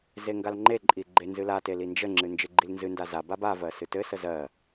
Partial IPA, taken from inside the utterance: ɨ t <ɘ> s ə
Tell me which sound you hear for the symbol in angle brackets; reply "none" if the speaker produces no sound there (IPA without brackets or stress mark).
ɘ